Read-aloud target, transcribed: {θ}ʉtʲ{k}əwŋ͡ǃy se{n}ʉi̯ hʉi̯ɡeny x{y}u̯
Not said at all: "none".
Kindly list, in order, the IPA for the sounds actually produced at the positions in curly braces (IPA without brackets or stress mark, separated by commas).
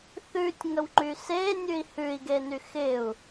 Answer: θ, ŋ, nʲ, ɪ